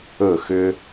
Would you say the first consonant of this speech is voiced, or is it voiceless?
voiceless